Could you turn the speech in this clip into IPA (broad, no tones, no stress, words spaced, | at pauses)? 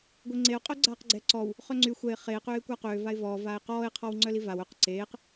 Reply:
ɡʷeŋ͡ǀeʊ̯ qʼœɡ͡ǀaːqɡ͡ǀɛ ǀɔw | χœŋ͡ǀy xʷɛɪ̯ χeː qøːɪ̯kʷaqøː vaɪ̯vɔː vaːɪ̯qɔːɪ̯ qʰɔwŋ͡ǀœlivaw œq ǀeːq